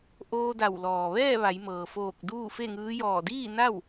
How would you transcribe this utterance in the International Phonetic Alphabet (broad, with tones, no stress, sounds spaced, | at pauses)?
ʔ oː˧ d a˧˩ w l ɔː˩ ʋ ɛː˥˨ ʋ a˩˧ j m ɤː˩ f oː˧˩ k̚ d uː˥˨ f e˥˨ ŋ ɯː˧˥ j ɔː˧˩ d iː˥˨ n a˥˨ w